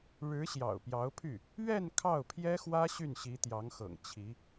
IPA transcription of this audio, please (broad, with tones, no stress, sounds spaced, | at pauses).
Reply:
ɻ ɻ̩˧˥ ɕ j ɑ̰˨˩ ʊ̯ p j ɑ˧˥ ʊ̯ pʰ y˥˩ | ɥ ɛ˥˧ n kʰ ɑ˥˩ ʊ̯ pʰ j ɛ˥ x w ä˥ ɕ y˥˩ n ɕ i˧˥ t̪ j ɑ˧˥ ŋ x ɤ̰˨˩ ŋ t͡ɕʰ i˧˥